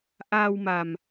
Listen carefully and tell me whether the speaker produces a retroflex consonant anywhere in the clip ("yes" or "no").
no